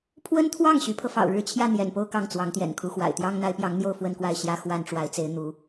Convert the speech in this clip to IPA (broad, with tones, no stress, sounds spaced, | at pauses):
pʰ w ə˥ n t̪ʰ w ɑ˥˩ ŋ ɕ y˧˥ pʰ ɤ˧ f ɑ̰˨˩ ʊ̯ ɻ ɻ̩˥˧ t͡ɕʰ j ä˥˩ n̪ j ɛ̰˨˩ n p o˥˧ ʊ̯ k ɑ˥˩ ŋ t͡s w ɑ˧˥ ŋ t̪ j ɛ̰˨˩ n kʰ u˧˥ x w a̰˨˩ ɪ̯ t̪ j ɑ˥ ŋ n̪ a˧˥ ɪ̯ p j ɑ˧˥ ŋ n̪ j o˥˧ ʊ̯ f w ə˥˧ n k w a˥˩ ɪ̯ ɕ j ä˥ x w a˥ n ʈ͡ʂ w a˧˥ ɪ̯ t͡s e˧˥ ɪ̯ n̪ u˧˥